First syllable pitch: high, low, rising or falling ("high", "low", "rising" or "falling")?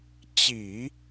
low